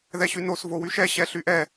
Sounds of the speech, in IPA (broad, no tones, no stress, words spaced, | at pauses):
ðɛɕynos vowyʃɛ ɕɛɬyʔɛ